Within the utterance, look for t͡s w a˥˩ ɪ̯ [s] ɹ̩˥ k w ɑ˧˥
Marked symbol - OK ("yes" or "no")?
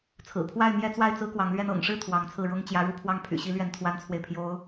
no